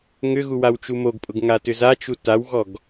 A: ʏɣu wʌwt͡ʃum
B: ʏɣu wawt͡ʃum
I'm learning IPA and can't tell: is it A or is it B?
B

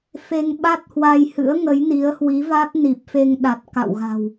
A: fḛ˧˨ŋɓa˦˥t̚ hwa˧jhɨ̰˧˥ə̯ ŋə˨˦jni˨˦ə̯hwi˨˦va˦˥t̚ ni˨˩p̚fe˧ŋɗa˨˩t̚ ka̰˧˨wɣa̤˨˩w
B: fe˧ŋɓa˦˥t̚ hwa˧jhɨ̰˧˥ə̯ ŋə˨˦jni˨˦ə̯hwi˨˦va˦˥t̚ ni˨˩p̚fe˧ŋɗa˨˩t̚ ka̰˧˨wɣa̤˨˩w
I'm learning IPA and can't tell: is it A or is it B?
B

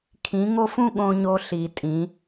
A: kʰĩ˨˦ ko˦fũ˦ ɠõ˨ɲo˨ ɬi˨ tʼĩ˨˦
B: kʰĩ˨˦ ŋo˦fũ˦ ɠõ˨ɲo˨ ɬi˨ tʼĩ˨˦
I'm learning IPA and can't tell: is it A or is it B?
B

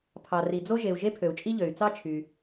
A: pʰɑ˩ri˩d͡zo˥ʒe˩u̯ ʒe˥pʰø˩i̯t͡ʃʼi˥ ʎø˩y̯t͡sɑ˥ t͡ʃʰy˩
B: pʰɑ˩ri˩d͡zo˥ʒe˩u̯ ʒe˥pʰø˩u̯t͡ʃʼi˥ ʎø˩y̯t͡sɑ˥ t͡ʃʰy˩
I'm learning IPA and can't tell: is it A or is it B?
B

